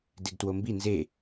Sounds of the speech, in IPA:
d e ɡ t w o m b i n z e

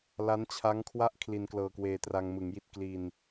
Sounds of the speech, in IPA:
l a˦˥ n t͡ɕʰ a˦˥ ŋ kʰ w a˥˩ ʔ kʰ l i˧ n k l ɤː˧ k w eː˧ t r a˧ ŋ m ɯ˩˦ ŋ j i˦˥ t̚ k l i˧ n

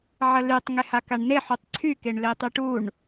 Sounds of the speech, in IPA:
ʕ ə l y tˤ ŋ e h a k a ɳ n e ħ u tˤ ǀʰ y k e ɳ l e tˤ y ʈ u ɳ

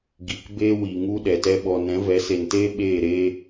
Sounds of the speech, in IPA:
ɡ i˨ k b eː˦ w i˨ ŋ u˦ ɗ ɛ˨ t ɛ˧ ɓ ɔ˨ n ɛ̃˨˦ v ɛ˨˦ s e˨ n t eː˦ ɓ eː˦˨ ɾ eː˦

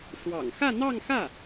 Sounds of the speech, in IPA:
ʂ w ɑ̰˨˩ ŋ x ä˥˧ n̪ ɑ˥˧ ŋ x ä˥˩

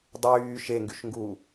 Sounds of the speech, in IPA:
dˤ yː ʃ e ŋ ɡ y ʃ ŋ ɡ u

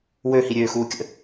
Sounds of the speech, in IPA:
w ø h i ɾʲ øː x uː kʲ ə̰

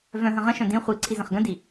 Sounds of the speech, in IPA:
v œ̃ ɦ ə̃ ʁ ə̃ ʃ œ̃ d ĩ χʷ i ǀʰ i z ə̃ χ ɡ ə̃ d i

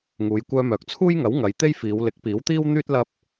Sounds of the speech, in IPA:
ŋ uː˨˧ j kʷ œː˧ m œː˨ k̚ t͡sʰ uː˥ j ŋ ɐ˨˥ w ŋ ɐ˨˧ j t̪ e˥ j f iː˨˧ w l ɪ˨˥ k̚ p iː˨˥ w t̪ iː˥ w n̪ yː˥ t̚ l ɐ˧ p̚

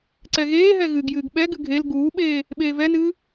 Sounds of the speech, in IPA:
ǀ ɛ ɣ eː ɦ ɛ ɣ ɨ ɡ j ɨː ɡ ɓ ɛ ɡ ɨ ɡʱ e l ɡ uː ɓ eː | ɓ eː v ɛ n ɨː

